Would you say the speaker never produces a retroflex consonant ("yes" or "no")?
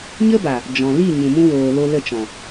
yes